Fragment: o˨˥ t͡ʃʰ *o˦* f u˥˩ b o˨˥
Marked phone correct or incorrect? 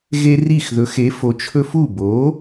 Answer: incorrect